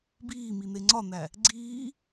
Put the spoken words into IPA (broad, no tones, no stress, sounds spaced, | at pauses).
b iː m i n̪ e ŋ͡ǀ ɒ n̪ æ | ɡ͡ǀ iː